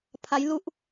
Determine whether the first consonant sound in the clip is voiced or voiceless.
voiceless